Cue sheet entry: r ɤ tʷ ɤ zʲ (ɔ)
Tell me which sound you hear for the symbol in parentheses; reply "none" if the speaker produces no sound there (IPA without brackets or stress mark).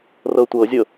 ɤ